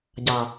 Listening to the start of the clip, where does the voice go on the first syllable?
low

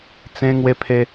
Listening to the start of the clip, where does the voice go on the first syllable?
high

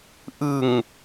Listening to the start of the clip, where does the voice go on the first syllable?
low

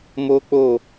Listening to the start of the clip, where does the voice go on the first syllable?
high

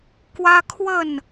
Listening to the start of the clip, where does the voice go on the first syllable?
high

